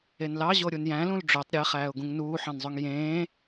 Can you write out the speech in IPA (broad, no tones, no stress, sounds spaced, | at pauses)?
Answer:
e n l ɑ ʑ o ɾʲ u n j æ̃ l ũ l ɖ͡ʐ ø tˤ ɾʲ e χ æː ʊ̯ ɡ ũ ŋ n uː ħ ɑ̃ n zˤ ø ŋ j ẽː